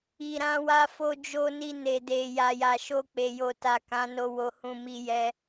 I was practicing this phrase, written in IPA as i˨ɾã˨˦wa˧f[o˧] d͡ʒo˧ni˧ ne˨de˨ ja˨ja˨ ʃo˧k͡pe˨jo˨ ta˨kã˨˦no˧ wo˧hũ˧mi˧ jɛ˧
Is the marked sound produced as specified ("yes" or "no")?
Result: yes